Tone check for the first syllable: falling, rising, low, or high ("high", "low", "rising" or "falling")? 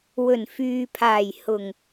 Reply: low